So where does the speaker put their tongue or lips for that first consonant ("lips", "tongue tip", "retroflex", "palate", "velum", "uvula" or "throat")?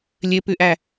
tongue tip